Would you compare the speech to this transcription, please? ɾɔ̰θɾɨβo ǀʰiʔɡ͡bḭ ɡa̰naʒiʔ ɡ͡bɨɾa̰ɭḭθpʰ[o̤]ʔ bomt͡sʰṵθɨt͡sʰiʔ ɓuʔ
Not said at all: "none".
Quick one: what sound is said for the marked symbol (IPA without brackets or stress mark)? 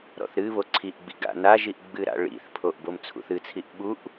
o